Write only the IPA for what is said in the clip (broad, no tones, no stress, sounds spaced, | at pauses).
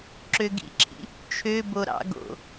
ǁ ø ɡ ḭ ǁʰ ḭ | t͡ʃʰ ø b o ɾ ɑ̰ ɡ o̰